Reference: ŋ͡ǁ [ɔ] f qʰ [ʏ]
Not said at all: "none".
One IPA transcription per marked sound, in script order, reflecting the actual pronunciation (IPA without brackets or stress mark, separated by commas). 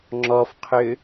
ɔ, ʏ